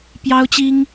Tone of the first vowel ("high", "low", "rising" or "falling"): high